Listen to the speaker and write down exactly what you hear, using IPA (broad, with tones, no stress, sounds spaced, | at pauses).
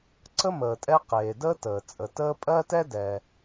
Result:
ǀ ə˥ m əː˩ tʼ ɛ˥ q eː˩ d əː˥ t əː˩ t͡sʼ ə˩ t əː˥ pʼ ɜ˥ t ɛ˥ d ɛ˩